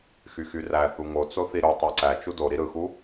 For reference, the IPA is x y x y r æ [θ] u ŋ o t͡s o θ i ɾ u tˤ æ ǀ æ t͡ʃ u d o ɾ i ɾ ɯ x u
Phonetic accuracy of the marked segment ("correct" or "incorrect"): correct